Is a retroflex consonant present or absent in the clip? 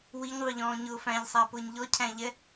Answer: absent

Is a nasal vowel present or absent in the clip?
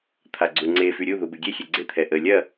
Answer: absent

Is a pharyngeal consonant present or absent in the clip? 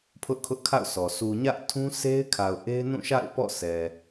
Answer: absent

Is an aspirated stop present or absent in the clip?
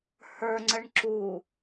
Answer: absent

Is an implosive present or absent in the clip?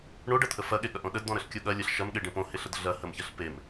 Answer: present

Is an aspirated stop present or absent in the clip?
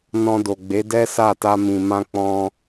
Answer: absent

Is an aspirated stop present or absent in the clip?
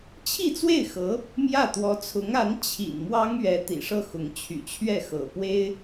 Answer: present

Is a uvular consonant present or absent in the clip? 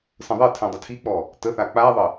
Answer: absent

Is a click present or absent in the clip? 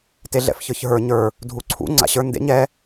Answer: present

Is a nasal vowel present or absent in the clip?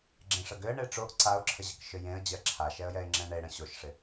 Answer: present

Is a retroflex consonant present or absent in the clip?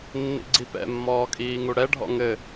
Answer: present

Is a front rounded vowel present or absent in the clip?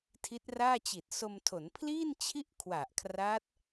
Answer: absent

